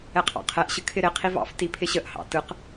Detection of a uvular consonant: present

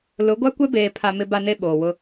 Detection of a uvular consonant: absent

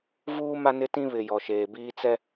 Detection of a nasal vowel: present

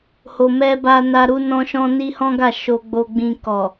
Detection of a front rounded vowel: absent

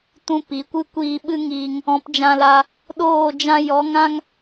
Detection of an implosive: present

